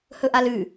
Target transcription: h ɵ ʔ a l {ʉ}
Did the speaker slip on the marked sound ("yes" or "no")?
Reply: no